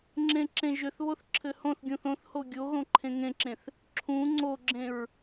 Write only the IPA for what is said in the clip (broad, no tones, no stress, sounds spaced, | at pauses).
ŋ͡ǁ ẽ ǁ ẽ ʒ ʏ θ β o θ ǁʰ ɘ h õ θ ɡʲ ũ θ õ θ h o ɡʲ o ɣ õ ǃʰ ẽ ŋ ẽ ǁ ẽ θ | ǁʰ ũ ŋ͡ǀ o ɡ͡ǁ ẽ ɹ